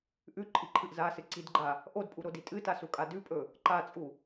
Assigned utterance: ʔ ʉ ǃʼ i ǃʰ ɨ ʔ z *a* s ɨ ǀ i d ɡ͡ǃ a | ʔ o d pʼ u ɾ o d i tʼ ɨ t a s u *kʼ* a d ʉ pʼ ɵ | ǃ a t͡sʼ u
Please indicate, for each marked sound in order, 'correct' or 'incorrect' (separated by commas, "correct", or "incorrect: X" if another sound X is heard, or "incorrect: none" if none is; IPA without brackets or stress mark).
correct, correct